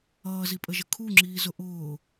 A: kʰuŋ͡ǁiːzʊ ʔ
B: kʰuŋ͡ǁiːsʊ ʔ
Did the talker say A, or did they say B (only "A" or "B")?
A